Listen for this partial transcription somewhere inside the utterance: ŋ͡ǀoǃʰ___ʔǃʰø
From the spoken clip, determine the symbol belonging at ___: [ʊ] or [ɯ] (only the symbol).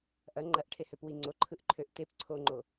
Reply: ɯ